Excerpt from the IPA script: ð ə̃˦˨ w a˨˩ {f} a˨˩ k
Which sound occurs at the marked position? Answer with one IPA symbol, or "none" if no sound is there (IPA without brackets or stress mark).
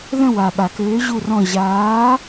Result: ɓ